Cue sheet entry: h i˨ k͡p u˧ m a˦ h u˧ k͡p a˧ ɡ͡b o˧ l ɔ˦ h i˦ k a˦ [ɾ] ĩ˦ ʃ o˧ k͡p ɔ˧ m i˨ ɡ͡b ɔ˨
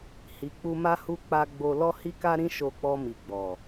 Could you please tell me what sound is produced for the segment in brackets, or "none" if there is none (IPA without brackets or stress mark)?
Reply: ɾ